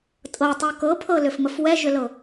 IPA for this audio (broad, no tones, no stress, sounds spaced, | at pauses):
tʼ ɤ tˤ u k ɤ pʰ ɤ l ʏ f m ə f w ɛ ʒ ʏ l ɤ